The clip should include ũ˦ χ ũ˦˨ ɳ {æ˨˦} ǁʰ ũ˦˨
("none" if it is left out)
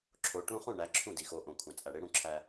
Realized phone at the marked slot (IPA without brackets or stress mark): æ˨˦